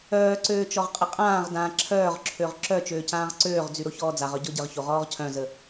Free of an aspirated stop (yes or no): no